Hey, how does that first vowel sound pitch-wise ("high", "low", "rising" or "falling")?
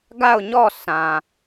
falling